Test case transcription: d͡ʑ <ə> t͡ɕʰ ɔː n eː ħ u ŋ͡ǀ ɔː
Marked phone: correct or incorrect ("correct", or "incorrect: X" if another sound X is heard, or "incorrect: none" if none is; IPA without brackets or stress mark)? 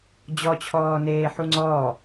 incorrect: ɔ